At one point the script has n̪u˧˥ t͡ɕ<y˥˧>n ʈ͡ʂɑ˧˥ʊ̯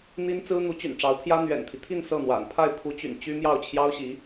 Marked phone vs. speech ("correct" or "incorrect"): incorrect